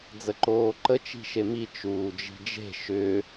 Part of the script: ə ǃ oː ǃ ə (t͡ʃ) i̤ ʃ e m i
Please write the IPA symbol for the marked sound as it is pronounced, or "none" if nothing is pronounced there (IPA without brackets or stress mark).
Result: t͡ʃ